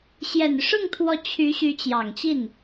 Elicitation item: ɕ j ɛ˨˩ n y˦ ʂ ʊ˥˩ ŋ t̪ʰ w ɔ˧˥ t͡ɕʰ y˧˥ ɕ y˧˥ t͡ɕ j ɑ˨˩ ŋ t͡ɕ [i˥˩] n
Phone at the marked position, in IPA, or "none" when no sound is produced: i˥˩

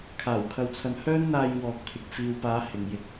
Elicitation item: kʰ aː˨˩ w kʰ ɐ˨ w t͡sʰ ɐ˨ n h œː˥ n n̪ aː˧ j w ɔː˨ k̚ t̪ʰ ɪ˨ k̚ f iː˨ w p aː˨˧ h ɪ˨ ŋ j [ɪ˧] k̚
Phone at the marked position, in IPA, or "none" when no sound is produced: ɪ˧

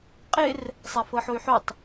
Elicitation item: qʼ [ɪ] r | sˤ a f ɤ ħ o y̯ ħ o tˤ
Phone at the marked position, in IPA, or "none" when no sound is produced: ɪ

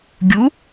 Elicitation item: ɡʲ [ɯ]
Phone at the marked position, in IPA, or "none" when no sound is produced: u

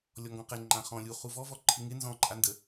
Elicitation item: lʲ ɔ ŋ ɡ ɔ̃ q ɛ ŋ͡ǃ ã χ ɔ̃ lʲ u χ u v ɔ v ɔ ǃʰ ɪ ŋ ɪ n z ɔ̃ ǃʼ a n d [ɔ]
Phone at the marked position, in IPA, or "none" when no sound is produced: ə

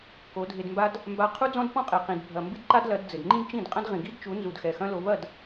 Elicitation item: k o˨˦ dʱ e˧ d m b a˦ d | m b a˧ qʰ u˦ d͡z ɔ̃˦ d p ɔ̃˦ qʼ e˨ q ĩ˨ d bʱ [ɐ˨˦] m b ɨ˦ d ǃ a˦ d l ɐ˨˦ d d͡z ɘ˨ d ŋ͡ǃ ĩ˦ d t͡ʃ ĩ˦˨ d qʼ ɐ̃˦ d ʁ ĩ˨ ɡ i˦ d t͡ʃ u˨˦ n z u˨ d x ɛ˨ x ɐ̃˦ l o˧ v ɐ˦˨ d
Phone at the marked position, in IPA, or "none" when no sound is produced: ɐ˨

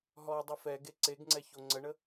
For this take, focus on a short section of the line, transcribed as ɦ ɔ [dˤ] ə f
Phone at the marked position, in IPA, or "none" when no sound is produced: dˤ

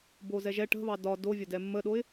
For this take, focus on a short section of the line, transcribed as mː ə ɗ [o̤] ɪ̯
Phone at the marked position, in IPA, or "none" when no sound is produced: o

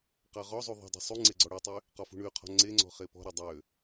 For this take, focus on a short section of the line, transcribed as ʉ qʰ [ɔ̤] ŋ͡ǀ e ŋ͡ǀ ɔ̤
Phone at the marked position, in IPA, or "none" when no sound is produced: ɔ̤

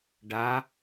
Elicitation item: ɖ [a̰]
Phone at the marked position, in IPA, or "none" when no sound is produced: a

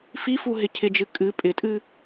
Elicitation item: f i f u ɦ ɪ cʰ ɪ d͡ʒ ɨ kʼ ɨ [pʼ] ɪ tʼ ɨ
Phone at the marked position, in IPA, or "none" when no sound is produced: pʼ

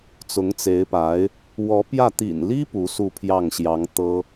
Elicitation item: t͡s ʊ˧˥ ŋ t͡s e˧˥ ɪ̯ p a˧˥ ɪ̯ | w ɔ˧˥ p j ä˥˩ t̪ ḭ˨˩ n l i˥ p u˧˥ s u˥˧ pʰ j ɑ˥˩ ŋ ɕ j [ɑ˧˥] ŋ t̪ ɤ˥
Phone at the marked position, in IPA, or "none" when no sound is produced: ɑ˧˥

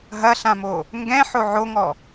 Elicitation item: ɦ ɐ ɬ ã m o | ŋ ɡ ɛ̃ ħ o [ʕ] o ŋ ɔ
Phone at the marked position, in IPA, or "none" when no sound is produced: ʕ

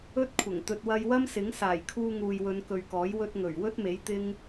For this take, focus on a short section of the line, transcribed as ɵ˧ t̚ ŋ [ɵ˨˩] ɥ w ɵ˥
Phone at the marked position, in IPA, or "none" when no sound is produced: ɵ˨˩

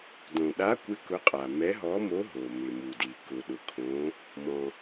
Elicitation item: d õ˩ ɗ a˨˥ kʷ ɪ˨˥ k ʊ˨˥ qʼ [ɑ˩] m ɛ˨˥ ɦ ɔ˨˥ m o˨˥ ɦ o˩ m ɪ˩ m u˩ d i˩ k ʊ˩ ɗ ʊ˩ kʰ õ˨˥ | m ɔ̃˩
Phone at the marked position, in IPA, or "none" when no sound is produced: a˩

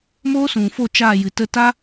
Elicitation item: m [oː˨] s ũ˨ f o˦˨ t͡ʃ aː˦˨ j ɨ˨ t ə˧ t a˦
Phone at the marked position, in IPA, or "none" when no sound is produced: oː˦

